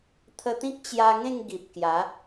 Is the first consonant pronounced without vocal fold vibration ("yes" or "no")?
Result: yes